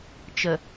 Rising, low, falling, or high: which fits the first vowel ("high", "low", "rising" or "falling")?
low